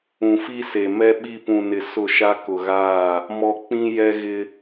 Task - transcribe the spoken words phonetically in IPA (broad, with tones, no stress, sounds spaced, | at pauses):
ũ˨ f i˦ s e˨ m ɛ˦ ɓ i˦˨ p ũ˨ n ɪ˨ s ʊ˦˨ ʃ a˦ k ʊ˨ ɣ aː˦˨ | m ɔ˦ k͡p ĩ˦ j ɛ˦ ɣ ɪ˦